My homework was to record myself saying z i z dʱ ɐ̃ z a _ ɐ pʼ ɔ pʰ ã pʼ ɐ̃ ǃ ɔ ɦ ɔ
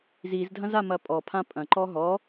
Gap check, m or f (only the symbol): m